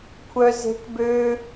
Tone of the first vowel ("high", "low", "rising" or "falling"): high